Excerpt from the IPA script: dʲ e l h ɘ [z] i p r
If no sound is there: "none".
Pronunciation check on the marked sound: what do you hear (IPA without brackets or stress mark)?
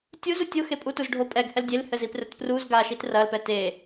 z